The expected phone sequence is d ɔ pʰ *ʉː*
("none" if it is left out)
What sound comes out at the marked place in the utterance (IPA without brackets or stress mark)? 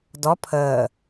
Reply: əː